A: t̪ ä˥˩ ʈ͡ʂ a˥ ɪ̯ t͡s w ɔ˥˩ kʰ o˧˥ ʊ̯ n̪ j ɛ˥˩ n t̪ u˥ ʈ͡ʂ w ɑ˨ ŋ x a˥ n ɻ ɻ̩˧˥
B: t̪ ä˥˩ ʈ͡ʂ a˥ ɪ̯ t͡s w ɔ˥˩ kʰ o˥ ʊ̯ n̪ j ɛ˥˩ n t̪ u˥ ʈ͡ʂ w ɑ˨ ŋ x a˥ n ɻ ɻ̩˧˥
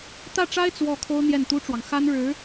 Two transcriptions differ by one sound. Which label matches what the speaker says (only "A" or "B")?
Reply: B